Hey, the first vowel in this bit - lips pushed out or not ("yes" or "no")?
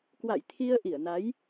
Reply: no